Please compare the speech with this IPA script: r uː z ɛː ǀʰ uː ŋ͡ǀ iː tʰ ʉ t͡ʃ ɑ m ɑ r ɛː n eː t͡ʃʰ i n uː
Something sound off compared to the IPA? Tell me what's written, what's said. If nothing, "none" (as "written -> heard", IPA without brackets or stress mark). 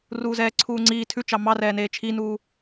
none